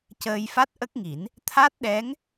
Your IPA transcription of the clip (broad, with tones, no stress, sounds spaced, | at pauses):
c əː˧ j f a˦˥ t̚ ʔ ə˦˥ k̚ ŋ i˨˩˦ n | t̪ʰ a˦˥ t̚ ɗ ɛ˧˥ ŋ